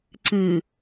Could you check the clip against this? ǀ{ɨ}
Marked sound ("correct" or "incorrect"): correct